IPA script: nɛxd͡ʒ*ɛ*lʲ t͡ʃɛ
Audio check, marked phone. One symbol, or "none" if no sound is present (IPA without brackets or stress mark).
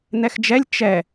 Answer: ɛ